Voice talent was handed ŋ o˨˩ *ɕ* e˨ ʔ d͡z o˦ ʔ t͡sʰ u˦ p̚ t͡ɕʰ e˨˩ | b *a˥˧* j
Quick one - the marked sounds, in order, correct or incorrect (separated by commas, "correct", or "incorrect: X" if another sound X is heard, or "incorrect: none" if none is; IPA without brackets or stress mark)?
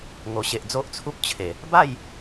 correct, correct